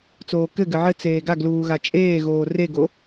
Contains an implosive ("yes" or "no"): no